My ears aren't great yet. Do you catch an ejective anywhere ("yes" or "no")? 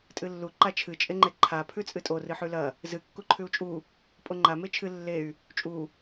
yes